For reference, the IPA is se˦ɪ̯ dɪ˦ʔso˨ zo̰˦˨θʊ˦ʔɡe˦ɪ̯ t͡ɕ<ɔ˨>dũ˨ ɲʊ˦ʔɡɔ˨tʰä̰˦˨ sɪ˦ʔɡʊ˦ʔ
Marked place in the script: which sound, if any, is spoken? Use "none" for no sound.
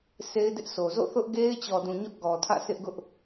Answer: ɔ˨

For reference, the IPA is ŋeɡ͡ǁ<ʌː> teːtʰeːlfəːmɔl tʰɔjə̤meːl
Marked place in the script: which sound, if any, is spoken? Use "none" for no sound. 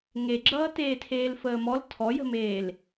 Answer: ʌː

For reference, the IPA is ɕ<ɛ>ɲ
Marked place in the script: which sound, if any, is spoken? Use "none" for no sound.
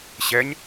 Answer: ɛ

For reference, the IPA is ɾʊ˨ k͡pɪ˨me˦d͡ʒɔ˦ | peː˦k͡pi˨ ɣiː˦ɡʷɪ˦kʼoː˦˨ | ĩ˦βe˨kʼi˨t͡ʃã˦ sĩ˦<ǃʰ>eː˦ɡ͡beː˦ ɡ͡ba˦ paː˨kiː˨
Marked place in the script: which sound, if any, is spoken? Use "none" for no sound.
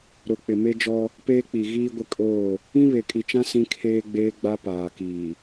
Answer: kʰ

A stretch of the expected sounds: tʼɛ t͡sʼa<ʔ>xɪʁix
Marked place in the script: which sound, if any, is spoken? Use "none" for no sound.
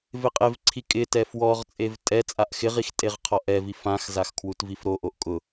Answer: ʔ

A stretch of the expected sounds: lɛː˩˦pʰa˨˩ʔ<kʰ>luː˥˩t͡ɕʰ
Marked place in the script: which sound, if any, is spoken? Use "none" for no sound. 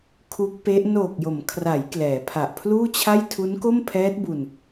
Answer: pʰ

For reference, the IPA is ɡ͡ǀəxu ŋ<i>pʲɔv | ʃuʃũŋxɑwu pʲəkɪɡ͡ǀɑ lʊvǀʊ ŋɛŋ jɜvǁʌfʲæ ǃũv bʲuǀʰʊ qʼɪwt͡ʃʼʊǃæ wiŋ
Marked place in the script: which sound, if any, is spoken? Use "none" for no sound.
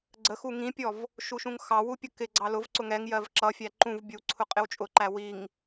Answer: ĩ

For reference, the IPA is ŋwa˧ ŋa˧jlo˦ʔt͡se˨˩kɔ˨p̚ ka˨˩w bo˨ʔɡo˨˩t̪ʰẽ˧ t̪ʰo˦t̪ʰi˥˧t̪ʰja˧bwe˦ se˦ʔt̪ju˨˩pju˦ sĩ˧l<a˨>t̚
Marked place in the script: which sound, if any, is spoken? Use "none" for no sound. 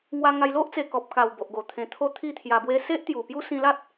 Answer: a˦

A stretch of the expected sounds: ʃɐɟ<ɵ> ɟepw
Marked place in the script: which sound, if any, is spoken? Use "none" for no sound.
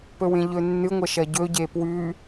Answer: ɵ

